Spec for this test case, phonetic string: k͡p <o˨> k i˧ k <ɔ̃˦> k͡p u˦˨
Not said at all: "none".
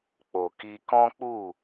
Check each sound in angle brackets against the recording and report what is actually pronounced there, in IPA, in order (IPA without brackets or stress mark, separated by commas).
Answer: o˨, ɔ̃˦